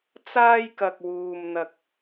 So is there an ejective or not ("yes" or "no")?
no